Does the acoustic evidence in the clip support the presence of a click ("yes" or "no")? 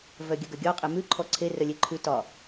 yes